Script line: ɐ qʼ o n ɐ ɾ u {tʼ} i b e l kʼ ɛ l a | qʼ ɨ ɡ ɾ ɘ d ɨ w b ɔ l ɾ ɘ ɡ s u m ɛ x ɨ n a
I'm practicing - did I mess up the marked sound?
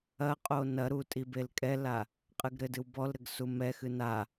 no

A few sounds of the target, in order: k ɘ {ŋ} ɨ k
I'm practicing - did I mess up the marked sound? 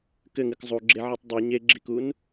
no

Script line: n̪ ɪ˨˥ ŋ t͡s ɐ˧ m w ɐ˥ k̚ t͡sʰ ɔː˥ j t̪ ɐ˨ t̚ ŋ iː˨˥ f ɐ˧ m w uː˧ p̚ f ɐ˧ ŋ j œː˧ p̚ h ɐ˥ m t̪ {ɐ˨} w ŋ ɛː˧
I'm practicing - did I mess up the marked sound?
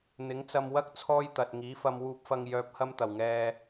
yes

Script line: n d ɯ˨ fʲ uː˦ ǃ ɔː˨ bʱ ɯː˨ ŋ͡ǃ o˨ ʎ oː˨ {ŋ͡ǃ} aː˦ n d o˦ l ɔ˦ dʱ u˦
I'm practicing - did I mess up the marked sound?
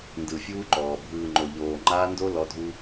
no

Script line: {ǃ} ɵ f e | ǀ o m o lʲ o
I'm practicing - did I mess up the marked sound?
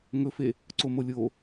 yes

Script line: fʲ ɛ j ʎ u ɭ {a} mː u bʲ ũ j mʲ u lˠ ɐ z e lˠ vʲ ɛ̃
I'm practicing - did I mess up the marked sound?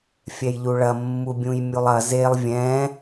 yes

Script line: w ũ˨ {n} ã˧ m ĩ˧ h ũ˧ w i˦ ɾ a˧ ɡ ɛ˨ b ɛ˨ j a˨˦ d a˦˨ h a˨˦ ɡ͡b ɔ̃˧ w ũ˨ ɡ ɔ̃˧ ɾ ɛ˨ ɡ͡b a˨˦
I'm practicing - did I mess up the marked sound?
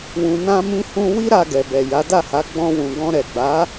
no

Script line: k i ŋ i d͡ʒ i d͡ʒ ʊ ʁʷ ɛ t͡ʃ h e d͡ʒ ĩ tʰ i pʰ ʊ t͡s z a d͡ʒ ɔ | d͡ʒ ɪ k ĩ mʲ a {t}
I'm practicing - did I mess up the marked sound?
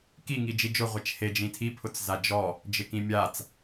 yes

